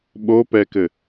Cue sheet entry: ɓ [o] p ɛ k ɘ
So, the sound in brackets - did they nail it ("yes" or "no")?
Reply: yes